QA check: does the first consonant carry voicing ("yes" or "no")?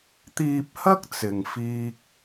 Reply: no